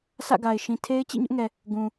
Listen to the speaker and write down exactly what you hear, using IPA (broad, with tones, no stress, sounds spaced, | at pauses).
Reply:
sʰ ä̰˦˨ ɡ a˨ ɪ̯ ʃ ĩ˨ tʰ e˦ ɪ̯ t͡ɕ ḭ˦˨ ɲ ʊ˦ ʔ ŋ ɛ˨ | ɡ ũ˨